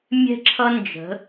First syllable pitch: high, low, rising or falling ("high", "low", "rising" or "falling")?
high